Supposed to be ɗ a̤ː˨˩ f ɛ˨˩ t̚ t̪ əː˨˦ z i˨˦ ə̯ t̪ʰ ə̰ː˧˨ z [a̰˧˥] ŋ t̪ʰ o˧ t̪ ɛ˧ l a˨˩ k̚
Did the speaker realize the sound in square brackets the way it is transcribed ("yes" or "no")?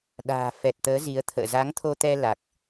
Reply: no